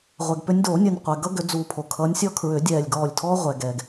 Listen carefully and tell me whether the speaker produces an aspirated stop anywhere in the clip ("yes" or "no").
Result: yes